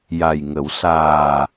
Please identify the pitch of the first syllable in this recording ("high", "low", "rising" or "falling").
low